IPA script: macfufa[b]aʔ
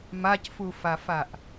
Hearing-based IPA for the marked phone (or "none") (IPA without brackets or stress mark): f